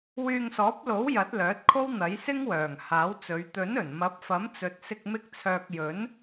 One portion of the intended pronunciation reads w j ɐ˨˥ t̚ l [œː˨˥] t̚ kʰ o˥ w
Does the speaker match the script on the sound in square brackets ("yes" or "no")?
yes